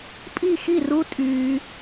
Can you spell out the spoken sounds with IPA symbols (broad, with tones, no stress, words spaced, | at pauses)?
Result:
pʼi˥˨xi˥˨ru˦˥ tʼyː˦˥